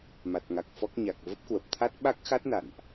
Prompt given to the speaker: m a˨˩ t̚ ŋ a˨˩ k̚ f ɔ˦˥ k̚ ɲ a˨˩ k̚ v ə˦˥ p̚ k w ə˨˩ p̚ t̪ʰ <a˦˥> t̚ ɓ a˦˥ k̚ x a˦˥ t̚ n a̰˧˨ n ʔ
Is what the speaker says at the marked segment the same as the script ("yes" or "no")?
yes